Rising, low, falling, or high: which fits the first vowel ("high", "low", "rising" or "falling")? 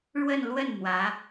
falling